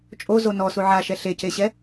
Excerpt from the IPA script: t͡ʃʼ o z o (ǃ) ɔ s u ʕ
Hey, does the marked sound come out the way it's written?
no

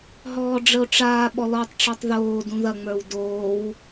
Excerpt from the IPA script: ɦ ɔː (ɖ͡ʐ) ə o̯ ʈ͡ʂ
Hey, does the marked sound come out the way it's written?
yes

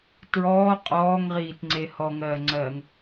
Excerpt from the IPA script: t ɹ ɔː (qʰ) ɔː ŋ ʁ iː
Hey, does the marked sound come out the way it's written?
no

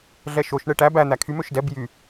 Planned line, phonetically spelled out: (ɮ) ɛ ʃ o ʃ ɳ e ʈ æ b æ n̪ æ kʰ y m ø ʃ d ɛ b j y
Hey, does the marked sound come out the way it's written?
yes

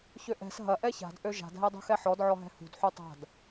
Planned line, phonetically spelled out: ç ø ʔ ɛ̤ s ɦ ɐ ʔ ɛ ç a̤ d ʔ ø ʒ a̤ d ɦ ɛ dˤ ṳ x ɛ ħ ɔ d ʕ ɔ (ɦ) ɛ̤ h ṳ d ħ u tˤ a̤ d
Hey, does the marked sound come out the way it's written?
yes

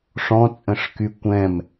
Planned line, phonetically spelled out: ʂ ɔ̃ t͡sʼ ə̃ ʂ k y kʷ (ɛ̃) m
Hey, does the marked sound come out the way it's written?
yes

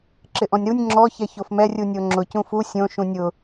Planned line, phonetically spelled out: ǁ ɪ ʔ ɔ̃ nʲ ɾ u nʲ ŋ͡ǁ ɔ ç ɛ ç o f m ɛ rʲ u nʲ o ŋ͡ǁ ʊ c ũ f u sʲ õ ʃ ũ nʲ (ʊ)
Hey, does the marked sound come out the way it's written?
yes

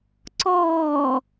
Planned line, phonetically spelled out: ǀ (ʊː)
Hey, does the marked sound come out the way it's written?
no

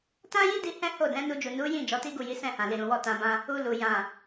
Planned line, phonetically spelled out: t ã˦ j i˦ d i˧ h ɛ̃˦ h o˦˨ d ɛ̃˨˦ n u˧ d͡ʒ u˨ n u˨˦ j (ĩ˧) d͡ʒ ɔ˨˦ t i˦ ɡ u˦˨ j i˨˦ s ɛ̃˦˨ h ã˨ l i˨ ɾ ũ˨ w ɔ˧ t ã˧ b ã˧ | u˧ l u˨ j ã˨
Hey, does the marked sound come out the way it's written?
no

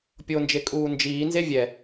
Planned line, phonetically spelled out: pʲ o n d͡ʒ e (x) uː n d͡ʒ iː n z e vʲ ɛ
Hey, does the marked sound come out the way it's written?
no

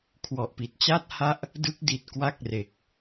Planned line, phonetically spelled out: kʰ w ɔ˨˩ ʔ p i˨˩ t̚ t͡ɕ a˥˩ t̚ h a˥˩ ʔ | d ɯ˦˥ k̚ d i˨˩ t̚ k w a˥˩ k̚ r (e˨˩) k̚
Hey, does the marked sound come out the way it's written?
yes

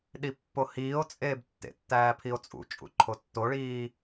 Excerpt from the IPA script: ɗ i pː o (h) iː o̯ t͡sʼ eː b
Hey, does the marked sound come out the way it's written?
yes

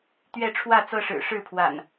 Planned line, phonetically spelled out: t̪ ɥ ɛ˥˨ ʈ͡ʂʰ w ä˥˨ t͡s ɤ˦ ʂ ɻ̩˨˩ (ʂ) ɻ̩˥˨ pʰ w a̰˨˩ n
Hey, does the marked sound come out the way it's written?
yes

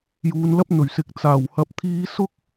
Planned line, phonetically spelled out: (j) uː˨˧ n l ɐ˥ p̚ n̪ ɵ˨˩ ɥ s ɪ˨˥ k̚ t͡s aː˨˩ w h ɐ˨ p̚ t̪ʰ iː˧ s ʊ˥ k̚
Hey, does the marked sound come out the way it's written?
yes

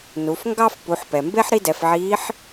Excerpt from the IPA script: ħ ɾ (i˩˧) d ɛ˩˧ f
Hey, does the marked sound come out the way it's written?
no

